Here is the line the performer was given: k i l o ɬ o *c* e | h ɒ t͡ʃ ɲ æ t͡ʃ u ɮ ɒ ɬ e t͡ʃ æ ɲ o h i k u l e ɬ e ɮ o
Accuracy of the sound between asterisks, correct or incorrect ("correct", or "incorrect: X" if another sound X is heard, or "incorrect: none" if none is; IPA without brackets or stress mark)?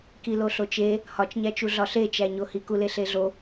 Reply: incorrect: t͡ʃ